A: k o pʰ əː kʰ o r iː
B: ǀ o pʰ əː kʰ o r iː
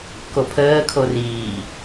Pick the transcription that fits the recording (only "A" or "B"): A